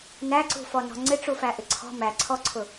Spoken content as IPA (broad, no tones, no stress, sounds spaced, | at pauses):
n æ ǀ ṳ f ɔ n ɔ̤ ŋ͡ǀ ɪ ʈ͡ʂ u f æ ʔ ɪ ǀʰ ɔ̤ m æ ǀʰ ɔ ǀʰ ʊ